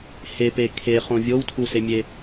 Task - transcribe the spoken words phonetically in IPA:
h e p e kʰ e χ õ vʲ o w tʰ u s e mʲ e

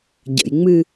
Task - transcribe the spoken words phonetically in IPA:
ɟ ə̰ j ŋ͡m ɨ

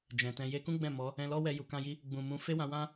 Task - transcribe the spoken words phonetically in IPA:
d͡ʒ ɛ̃˨ t ɛ̃˧ j e˧ k ũ˦ ɡ͡b ɛ̃˦˨ m ɔ˨˦ | ɛ̃˧ l ɔ˦ w ɛ˧ j u˨ k ã˧ j i˧ | ɡ͡b ũ˨ m ũ˨˦ f e˦ w ã˧ w ã˦

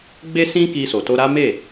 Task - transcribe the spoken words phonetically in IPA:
ɡ͡b e˦ s ĩ˦ k i˧ s o˨ t o˧ ɾ a˦ m e˦˨

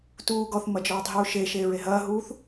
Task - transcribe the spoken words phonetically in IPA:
t uː ɡ ɔ θ m ɐ d͡ʒ ɔː tˤ ɦ uː ʃ e ʃ eː ɹ e ɦ ɐː ɦ uː θ

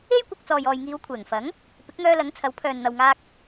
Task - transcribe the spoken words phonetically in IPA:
e˥ j kʷ ɐ˧ k̚ t͡s ɔː˨ j ɔː˨ j ŋ iː˨˧ w kʷʰ ɛː˨˩ ŋ f ɐ˨˥ ŋ | p ɪ˨˥ k̚ ŋ œː˧ l ɐ˨˥ ŋ t͡sʰ ɐ˨˥ w pʰ œː˨ n n̪ ɐ˨ w ŋ aː˧ k̚

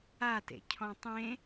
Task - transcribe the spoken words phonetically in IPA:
a t ḛ cʰ ɔ̃ tˤ ẽ

